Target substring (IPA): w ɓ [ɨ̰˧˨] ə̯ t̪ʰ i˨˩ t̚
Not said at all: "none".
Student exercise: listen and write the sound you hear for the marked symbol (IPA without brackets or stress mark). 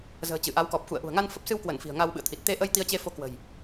ɨ̰˧˨